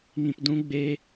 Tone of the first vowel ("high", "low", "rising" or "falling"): low